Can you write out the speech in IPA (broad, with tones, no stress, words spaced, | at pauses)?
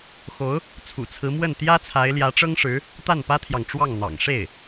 xo˧˥ʊ̯ | t͡sʰṵ˨˩t͡sʰɹ̩˧˥mwə˥˩n t̪jä˥t͡sʰa˧˥ɪ̯ ljä˧˥ʈ͡ʂɤ˥ŋʂɻ̩˧˥ | t̪a˥˩npä˥t̪ʰjɑ˨ŋʈ͡ʂwɑ˥˩ŋ n̪ɑ̰˨˩ŋʂe˥˩ɪ̯